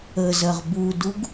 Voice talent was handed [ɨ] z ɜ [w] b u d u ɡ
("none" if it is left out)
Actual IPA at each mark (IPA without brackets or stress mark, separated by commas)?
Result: ə, ʁ